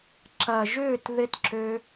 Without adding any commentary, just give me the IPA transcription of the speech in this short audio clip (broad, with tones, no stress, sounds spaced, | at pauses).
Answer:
ǁ ɐ˨ ʒ ʏː˦˨ t ð ɪ˧ t ǁ ø˧